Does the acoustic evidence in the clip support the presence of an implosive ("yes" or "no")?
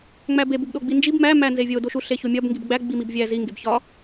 yes